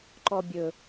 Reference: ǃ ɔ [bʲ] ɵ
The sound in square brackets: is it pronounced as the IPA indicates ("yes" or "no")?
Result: yes